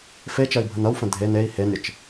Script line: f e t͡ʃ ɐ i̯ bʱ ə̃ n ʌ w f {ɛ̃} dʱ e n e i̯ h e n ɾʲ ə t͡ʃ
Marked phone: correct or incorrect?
incorrect